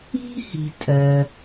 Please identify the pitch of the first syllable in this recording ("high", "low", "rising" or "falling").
high